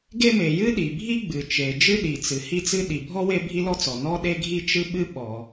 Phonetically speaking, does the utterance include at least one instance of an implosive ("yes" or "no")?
yes